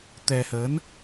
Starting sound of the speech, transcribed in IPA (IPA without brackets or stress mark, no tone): t̪